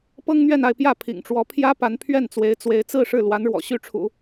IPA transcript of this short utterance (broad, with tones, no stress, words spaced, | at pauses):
pɤ˥ŋn̪ɥɛ˥˧na˥˧ɪ̯pjä˥˩ pʰḭ˨˩ŋʈ͡ʂwɔ˧˥pʰjä˥pa˧˥n pʰɥɛ˥˩nt͡swe˧˥ɪ̯t͡swe˧˥ɪ̯ t͡sɹ̩˥˧ʂɻ̩˥˩ lwa˧˥nɻwɔ̰˨˩ ɕy˥˩ ʈ͡ʂʰṵ˨˩˦